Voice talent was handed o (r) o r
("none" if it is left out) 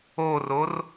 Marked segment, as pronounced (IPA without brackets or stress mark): r